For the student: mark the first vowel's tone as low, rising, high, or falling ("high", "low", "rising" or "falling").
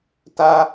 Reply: high